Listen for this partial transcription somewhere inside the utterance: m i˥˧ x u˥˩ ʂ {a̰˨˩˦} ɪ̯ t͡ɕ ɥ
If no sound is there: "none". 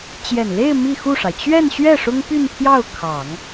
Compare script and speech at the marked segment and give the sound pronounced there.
a˩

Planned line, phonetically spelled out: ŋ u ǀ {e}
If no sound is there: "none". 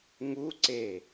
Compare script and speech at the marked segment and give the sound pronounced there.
e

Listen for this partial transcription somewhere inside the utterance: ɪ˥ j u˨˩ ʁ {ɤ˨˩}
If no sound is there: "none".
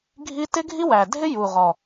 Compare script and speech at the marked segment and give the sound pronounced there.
ɔ˨˩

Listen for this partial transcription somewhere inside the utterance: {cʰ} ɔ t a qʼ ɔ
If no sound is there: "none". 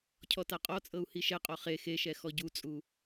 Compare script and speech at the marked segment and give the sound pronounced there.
cʰ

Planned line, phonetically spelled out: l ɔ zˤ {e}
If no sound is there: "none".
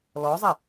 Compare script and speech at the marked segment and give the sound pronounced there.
e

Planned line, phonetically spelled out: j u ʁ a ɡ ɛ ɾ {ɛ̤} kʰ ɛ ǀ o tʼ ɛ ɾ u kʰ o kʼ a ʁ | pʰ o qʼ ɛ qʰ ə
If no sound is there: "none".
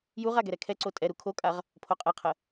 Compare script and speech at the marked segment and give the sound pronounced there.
ɛ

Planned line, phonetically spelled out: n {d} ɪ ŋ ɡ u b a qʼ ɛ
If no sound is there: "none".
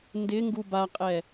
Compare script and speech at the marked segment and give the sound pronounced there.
d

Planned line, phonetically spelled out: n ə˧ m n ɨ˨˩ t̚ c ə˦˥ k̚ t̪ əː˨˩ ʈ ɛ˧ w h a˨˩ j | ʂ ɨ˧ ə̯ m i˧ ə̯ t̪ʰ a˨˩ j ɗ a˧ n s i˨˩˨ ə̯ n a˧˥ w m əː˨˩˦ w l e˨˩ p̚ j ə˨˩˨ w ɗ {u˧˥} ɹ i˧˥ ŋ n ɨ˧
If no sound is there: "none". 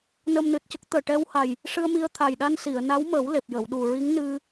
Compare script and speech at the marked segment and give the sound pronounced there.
u˨˩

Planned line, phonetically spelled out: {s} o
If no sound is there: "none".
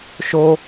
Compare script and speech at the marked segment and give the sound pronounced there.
ʃ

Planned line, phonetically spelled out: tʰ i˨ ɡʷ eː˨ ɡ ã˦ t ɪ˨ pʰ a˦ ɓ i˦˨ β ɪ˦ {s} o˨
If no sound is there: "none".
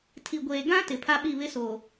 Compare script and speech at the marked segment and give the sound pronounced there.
s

